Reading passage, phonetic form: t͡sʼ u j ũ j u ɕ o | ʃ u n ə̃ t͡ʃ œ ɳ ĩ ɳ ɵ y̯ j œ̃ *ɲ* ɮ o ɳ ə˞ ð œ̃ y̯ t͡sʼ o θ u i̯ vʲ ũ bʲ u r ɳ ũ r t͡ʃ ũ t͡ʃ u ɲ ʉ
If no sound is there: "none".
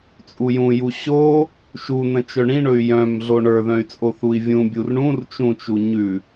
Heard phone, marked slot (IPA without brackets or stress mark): m